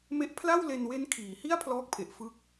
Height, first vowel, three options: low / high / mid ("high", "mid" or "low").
mid